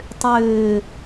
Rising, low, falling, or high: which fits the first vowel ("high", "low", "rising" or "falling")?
low